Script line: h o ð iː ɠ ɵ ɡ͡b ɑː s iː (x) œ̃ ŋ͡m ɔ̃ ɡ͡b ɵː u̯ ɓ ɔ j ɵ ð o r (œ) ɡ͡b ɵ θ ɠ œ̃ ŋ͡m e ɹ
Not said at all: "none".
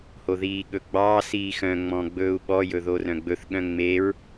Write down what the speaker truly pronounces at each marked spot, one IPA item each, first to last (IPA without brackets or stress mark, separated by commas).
x, œ̃